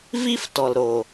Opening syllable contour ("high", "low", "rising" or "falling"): high